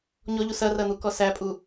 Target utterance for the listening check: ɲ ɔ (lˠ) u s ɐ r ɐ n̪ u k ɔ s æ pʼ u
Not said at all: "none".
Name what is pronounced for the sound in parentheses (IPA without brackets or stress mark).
ʎ